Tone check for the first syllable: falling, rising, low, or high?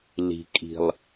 low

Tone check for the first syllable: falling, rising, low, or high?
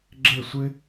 falling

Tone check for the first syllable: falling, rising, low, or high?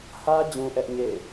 high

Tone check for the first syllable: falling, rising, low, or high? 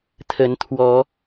rising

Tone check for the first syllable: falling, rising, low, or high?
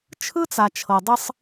high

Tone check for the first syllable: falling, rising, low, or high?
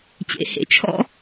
low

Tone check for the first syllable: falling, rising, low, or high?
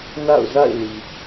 falling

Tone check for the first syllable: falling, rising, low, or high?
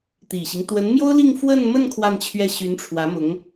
low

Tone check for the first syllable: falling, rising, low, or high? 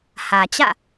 low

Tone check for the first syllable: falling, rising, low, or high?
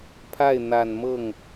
falling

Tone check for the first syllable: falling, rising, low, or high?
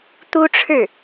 high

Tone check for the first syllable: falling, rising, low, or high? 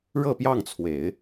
falling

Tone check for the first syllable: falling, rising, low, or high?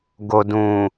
low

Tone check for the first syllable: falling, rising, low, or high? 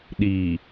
low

